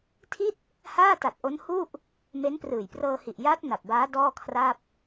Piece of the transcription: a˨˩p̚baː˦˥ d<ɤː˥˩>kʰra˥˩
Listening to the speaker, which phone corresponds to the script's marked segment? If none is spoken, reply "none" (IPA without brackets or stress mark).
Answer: ɔː˥˩